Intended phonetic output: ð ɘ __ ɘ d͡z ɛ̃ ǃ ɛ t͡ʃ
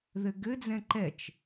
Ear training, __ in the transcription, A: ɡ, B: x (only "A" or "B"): A